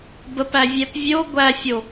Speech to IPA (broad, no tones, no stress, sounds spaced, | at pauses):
b ə p æ vʲ ɛ p vʲ o ɡʷ æ fʲ o